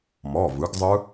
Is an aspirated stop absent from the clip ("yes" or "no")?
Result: yes